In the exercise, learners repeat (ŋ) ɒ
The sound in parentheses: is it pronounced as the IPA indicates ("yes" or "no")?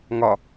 yes